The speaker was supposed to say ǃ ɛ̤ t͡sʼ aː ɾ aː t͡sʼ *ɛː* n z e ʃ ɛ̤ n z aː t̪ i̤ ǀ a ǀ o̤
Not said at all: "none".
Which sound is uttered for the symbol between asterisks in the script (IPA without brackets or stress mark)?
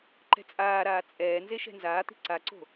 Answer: ɛː